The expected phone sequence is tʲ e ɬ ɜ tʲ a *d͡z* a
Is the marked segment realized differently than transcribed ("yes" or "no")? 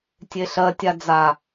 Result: no